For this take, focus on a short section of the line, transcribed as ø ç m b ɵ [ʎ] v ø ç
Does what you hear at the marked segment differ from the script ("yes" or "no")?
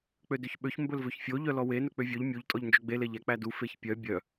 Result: yes